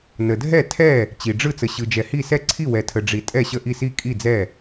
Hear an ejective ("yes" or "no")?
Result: yes